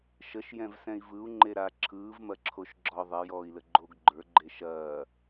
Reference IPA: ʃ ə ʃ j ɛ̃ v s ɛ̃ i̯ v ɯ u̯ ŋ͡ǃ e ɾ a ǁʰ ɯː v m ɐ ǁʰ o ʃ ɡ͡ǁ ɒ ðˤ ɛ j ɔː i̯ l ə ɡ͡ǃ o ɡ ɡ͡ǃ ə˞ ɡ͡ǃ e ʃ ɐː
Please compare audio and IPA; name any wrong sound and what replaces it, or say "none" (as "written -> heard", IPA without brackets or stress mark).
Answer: none